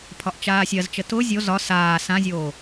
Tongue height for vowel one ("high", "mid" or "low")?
low